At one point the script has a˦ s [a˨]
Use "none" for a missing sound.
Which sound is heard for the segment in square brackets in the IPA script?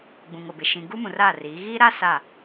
a˦˨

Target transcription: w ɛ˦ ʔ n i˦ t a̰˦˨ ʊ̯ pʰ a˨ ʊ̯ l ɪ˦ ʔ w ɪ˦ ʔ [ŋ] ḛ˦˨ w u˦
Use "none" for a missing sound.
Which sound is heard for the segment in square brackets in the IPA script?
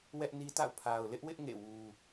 ŋ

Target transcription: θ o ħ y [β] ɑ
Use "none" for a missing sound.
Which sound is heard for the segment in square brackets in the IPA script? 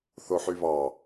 β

